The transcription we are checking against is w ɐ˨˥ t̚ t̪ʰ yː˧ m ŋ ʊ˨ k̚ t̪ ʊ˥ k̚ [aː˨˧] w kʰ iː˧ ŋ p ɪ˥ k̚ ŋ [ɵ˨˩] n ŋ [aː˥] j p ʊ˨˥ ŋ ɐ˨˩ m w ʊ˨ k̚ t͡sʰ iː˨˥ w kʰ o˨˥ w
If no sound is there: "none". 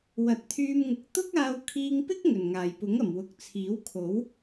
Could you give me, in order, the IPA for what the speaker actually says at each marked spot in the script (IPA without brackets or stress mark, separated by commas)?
aː˧, ɵ˨˩, aː˨˩